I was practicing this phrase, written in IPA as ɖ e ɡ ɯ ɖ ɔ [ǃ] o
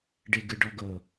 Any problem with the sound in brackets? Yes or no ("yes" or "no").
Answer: yes